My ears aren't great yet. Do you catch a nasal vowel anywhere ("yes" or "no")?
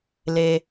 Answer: no